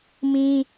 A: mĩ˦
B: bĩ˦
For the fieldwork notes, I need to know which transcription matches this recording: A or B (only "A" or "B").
A